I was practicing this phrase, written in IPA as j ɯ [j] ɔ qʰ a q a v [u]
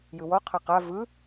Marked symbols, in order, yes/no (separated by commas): no, no